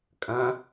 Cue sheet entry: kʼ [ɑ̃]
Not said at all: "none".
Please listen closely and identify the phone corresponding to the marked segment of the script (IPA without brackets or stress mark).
ɐ̃